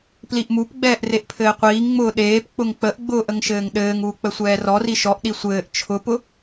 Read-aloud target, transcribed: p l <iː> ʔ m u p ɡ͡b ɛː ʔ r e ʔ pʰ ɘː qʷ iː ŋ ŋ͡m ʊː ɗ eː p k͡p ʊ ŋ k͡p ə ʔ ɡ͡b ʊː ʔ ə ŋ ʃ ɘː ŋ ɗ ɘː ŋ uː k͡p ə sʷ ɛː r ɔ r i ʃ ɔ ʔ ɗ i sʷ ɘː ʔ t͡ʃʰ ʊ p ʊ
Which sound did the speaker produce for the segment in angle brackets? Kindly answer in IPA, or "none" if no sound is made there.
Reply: i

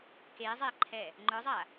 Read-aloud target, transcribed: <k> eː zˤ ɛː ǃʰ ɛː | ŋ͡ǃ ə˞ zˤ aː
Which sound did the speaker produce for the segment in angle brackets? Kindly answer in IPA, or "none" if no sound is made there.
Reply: k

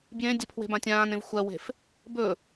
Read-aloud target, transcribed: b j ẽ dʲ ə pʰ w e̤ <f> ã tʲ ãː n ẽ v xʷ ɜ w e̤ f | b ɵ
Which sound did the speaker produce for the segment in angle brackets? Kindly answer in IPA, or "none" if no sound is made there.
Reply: b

